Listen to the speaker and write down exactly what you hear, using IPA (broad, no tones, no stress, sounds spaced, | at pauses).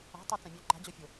a̤ tˤ a t͡s ã mʲ œ ǃ a̤ d͡ʑ ɔ fʲ o